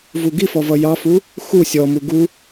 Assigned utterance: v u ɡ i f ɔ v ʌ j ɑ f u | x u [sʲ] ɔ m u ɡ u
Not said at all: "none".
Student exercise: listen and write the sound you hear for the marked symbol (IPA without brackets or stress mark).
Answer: sʲ